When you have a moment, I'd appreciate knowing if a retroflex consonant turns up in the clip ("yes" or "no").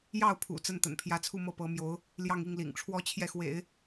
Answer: yes